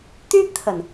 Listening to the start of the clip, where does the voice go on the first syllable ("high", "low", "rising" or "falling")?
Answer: high